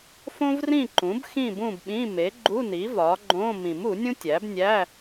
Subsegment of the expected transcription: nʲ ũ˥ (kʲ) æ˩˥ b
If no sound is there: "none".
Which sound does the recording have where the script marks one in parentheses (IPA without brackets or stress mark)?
tʲ